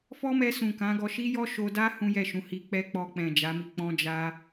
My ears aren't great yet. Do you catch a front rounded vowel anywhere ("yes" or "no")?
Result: no